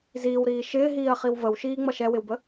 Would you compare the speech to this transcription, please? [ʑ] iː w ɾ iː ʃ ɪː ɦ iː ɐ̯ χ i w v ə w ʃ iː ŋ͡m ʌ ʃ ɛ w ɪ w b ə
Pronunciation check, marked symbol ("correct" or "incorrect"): incorrect